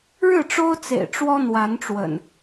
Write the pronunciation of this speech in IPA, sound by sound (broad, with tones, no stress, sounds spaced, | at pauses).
ɻ ɻ̩˥˨ ʈ͡ʂ o˦ ʊ̯ t͡s ḛ˨˩ ɪ̯ ʈ͡ʂ w ɔ˦ n̪ w a˨˦ n ʈ͡ʂ w ə̰˨˩ n